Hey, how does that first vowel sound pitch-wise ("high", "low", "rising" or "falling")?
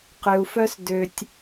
low